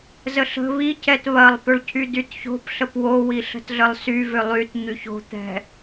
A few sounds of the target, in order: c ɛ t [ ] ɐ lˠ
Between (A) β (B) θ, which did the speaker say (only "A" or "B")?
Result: A